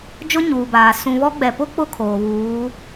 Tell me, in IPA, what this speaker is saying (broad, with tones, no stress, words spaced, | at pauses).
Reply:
d͡ʒʊ˦ɲuː˨baː˨ sũ˨βɔ˦ɡ͡bɛ˨ pʊ˦ k͡pʊ˦kʰoː˨βuː˨˦